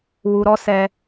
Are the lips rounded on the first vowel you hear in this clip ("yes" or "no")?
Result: yes